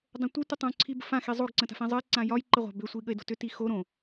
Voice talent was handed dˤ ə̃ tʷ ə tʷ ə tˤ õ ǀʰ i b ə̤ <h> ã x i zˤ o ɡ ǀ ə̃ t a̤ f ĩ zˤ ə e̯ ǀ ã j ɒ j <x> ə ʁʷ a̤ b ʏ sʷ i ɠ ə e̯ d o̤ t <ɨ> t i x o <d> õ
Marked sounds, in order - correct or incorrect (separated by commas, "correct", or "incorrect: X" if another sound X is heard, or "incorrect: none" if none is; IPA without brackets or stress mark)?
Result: incorrect: f, incorrect: ǃ, incorrect: ʏ, incorrect: ɾ